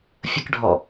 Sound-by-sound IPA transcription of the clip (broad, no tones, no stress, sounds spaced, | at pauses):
fʲ ə k ɖʱ ɔ